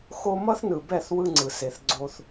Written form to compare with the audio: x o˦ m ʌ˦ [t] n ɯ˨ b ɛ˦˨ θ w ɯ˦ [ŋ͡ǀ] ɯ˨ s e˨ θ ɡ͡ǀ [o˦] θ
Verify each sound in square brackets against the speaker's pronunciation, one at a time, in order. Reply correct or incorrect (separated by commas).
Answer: incorrect, correct, correct